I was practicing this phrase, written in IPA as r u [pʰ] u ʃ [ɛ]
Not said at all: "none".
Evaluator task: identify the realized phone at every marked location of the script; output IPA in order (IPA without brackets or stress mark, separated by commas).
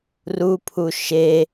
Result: pʰ, e